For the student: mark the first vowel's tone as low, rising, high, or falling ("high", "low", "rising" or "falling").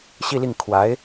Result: falling